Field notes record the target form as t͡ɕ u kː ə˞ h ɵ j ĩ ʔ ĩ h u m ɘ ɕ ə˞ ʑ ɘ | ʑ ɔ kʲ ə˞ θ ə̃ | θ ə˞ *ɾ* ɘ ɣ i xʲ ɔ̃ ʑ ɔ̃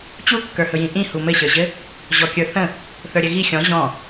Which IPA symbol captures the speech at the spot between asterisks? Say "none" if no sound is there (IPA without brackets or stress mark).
ɾʲ